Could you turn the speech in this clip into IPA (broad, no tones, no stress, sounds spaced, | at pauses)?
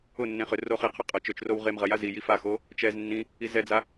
ʊ nː ẽ χ ʏ r o χ i qʰ ʊ qʼ ɐ t͡ʃ ø t͡ʃ r o w ʁ e m ʁ ɐ j a z i j i f a x o | t͡ʃ ɛ z nː ĩ | i z ɛ d͡z a